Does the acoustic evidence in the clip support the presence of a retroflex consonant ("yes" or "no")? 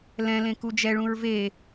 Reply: yes